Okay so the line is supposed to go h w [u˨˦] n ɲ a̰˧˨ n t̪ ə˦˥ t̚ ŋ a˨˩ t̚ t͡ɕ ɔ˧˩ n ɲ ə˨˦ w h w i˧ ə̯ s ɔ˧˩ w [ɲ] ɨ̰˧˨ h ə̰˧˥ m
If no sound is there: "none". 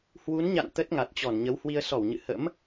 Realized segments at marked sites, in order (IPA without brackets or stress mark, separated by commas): u˨˦, ɲ